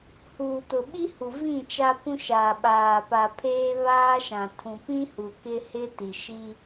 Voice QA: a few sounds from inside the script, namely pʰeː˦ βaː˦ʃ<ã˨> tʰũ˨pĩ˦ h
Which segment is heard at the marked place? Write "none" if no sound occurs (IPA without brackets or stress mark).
ã˨